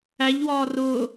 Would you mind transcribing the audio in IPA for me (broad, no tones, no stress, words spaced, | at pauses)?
æʎwɒː rʊː